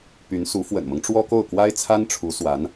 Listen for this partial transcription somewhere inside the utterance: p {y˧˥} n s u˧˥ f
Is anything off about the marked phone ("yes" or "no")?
no